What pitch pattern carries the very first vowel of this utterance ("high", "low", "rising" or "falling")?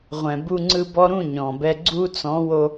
low